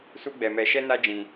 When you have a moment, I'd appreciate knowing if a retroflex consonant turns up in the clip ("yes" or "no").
no